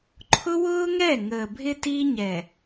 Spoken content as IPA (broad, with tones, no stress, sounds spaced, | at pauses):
ǃʰ ʊ˦ w ʊː˦ ŋ ɛ˦˨ ŋ əː˨ bʱ ɪ˦ t i˦ ɲ ɛ˨